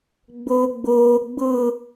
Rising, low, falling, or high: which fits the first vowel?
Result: high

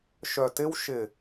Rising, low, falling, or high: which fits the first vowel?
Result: low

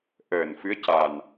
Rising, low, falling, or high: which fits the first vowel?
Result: low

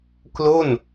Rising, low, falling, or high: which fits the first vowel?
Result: falling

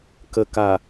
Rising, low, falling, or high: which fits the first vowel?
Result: low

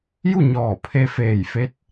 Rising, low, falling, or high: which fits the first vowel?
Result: falling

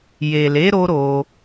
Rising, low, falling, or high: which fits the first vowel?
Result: low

